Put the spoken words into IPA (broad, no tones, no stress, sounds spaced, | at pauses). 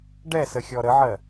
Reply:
ɖ ɛ s ə xʲ ɔ ɾ ə ʕ ɜ